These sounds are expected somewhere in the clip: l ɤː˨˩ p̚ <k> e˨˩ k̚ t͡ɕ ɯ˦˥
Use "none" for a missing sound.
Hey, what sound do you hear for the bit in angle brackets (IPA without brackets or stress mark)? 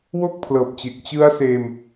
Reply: t͡ɕ